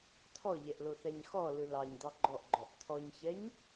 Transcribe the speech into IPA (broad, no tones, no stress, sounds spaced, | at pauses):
t̪ʰ ɔ ʎ ɛ ʔ l o θ æ ɲ x ɔ l ɯ l ɑ ɲ d̪ ɑ ɡ͡ǃ ɔ ʔ ɡ͡ǃ ɔ ʔ t̪ʰ ɔ ɲ ç ɛ ɲ